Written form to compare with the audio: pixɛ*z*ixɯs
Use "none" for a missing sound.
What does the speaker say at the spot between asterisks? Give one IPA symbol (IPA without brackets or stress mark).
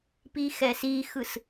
s